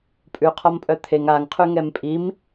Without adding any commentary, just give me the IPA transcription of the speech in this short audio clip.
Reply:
pʼʉqʰɔmpʼœ t̪ʰeŋ aŋqʰʉ ŋɛmpʼim

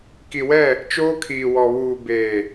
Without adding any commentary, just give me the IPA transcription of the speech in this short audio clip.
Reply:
ki˨wɛ˦˨ | t͡ʃoː˦kʰiː˨wɔ˨βuː˨ beː˨

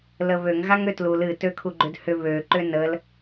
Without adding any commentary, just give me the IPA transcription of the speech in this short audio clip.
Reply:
ləβøŋ ɣaŋøtlul ɨ tøkʰuɡ͡ǃʏdhʏ βø ǃʏnəl

